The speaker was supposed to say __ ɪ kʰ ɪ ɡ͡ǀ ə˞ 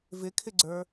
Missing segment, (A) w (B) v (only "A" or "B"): B